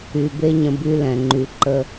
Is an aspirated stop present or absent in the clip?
absent